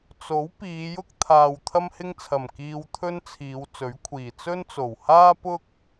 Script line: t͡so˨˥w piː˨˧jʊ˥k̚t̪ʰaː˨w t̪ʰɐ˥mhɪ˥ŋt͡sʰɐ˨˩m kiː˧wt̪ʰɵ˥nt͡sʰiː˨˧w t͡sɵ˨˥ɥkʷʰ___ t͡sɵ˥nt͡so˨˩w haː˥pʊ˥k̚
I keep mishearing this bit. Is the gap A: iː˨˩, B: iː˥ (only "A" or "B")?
A